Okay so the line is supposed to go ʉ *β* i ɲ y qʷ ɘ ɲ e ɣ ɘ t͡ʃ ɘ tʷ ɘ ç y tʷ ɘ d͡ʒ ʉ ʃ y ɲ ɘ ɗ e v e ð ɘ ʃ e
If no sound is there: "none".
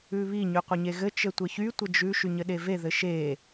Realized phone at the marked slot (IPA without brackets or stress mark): β